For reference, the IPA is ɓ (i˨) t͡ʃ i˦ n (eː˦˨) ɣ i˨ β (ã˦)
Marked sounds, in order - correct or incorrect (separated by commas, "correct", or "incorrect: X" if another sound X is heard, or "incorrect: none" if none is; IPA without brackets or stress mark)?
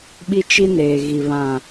incorrect: i˦, incorrect: eː˨, incorrect: ã˨